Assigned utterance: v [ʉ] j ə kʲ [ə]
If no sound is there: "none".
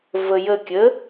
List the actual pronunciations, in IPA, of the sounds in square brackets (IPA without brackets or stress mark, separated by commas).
ə, ə